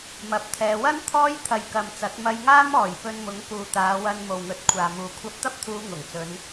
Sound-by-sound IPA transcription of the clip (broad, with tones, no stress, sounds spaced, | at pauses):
m ɐ˨ p̚ t̪ʰ ɛː˨˧ w ɐ˥ n t̪ʰ ɔː˥ j t̪ʰ ɐ˨ j k ɐ˨ m t͡s ɐ˨˥ t̚ m ɐ˧ j ŋ aː˥ m ɔː˨˩ j p ɵ˧ n m ʊ˨˥ ŋ k uː˨ t̪ aː˨˧ w ɐ˧ n m o˨ w ŋ ɵ˨˥ t̚ kʷʰ aː˨ m uː˨ kʷʰ ɐ˧ p̚ t̪ ɐ˥ p̚ t̪ʰ uː˨˧ ŋ ʊ˨˩ ŋ t͡s ɵ˨˧ n